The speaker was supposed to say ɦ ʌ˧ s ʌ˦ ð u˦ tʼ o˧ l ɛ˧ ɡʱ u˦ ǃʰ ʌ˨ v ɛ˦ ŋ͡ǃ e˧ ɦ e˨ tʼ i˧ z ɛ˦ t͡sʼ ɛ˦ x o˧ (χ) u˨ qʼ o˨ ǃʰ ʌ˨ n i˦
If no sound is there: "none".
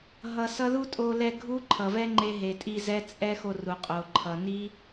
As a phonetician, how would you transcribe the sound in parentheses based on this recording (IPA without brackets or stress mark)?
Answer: r